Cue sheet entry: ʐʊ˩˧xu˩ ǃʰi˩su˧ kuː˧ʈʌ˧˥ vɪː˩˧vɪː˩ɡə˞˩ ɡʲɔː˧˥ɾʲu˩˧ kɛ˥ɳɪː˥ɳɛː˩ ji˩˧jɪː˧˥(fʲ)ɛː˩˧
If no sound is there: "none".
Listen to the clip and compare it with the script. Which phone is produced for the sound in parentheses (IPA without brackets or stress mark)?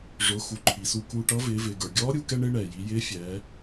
fʲ